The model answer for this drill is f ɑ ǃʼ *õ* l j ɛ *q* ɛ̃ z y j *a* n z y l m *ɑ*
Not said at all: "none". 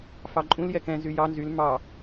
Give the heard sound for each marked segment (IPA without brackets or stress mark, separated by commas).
ũ, k, ɑ, ɑ